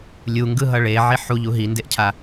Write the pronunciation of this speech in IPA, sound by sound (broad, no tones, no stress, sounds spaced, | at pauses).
lʲ u ŋ ɡ ɯ ɦ ʌ ɭ e ʕ i ħ u ʎ u ɦ i n d e ʔ cʰ a